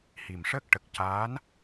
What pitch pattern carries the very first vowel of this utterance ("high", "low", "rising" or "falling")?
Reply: low